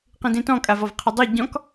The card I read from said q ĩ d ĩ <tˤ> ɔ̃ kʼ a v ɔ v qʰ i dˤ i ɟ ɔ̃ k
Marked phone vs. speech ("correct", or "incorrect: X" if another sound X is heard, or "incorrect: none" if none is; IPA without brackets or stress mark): incorrect: t